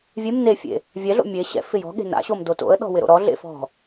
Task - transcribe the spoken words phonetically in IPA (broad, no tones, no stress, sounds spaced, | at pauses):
vʲ e m n e fʲ ḛ | vʲ ɛ ɮ o̰ mʲ e ɕ ɛ̰ f ɪ j ɔ̤ ɠ e̤ n a̰ ɕ o m d o t o̰ ə̯ ɗ ɔ̤ w ɪ ɾ o̰ ɾ ɔ ɮ ḛ f ɔ̤